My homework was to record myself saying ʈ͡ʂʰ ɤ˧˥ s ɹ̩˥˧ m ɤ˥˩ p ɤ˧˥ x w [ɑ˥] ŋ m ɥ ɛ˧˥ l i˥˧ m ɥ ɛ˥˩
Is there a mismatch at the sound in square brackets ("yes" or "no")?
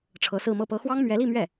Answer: no